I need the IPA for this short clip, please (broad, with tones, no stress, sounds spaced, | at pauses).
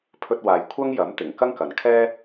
pʰ ɵ˧ t̚ w aː˨ j kʷʰ ɐ˥ ŋ j ɐ˨˥ m t̪ ɪ˨˩ ŋ k ɐ˥ ŋ k ɐ˨ n kʰ ɛː˥